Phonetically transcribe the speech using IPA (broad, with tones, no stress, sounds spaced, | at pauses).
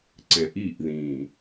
ǀ ɛ̃˨ ʔ iː˦˨ ʔ ð ĩː˨